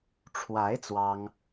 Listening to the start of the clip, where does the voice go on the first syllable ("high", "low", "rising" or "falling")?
rising